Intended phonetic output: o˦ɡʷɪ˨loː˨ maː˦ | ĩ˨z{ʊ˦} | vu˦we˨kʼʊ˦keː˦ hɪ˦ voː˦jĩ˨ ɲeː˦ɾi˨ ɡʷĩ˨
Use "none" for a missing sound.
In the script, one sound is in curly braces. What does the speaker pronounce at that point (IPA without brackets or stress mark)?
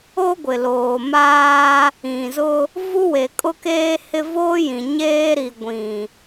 ʊ˦